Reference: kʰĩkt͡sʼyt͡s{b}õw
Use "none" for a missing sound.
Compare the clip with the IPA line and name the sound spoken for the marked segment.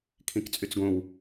ɡ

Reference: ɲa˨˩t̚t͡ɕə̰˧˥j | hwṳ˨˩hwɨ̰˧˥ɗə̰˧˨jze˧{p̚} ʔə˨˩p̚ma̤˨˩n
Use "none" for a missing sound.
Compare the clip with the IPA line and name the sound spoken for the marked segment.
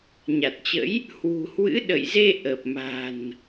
none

